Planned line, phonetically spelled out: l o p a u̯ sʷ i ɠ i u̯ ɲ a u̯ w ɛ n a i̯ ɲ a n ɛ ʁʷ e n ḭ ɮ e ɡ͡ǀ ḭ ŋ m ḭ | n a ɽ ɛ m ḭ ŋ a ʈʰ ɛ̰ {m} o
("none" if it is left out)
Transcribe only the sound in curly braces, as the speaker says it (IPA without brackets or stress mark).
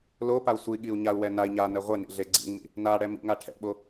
ɓ